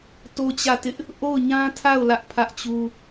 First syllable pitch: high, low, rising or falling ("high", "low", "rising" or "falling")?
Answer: high